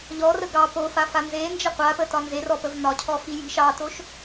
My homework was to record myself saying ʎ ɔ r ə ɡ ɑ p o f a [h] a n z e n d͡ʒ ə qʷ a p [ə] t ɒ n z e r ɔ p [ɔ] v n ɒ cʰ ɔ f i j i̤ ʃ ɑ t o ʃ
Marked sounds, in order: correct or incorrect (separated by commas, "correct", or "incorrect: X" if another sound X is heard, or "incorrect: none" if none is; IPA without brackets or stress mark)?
incorrect: f, correct, incorrect: ə